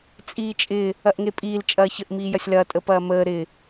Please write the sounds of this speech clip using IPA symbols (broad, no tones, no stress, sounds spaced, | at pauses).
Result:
t͡sʼ iː t͡ʃʼ ɪ | ɐ ʔ ŋ e pʼ iː l t͡ʃʼ ɐː ç ə ʔ m iː j ɐ sʲ l ɐː tʼ ə p ɐː m əː ɾ ɪ